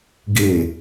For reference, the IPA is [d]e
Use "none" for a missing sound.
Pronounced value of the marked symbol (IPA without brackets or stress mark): ɡ